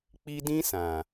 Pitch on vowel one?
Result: high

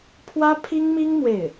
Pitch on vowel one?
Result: high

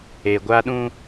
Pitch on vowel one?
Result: low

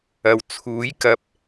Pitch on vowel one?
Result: low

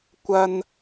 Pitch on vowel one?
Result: high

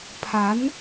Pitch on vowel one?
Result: rising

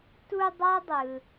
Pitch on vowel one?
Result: high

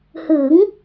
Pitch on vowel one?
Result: rising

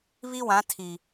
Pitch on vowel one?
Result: high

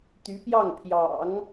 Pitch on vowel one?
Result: rising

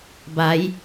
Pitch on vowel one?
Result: rising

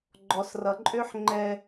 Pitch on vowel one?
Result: low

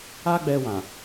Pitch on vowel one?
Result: high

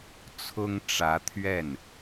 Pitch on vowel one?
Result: high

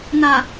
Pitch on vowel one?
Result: low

